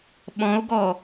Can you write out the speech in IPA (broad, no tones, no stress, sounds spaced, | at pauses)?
ɓ ɔ̃ o̯ ɡ ɔ